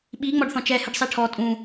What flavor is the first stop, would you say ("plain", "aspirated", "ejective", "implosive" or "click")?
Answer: implosive